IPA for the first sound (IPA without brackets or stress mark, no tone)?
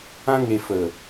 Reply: ã